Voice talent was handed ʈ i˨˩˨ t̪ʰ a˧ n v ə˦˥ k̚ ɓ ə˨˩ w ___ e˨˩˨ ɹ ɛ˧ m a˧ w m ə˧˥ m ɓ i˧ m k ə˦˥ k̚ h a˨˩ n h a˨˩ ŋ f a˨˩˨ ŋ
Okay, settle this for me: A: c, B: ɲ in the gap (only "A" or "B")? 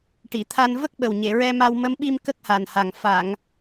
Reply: B